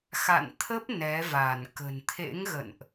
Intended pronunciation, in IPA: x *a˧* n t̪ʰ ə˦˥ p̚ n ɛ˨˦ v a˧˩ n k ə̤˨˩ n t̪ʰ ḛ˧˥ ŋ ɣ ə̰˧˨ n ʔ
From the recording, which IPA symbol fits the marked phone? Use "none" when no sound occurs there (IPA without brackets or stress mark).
a̰˧˨